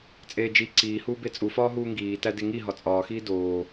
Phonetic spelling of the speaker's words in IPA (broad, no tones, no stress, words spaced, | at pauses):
t͡sʼeːd͡ʒi ǀiːhuː bet͡sʼufɒː ɦuːŋɡiː tædeŋi ɦɒt͡sʼɒːxiː doː